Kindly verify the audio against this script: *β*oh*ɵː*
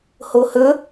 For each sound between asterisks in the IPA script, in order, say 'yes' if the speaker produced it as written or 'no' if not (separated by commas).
no, no